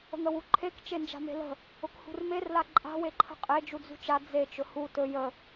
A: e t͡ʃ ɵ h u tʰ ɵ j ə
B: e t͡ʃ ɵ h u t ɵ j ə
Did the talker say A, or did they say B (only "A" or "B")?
B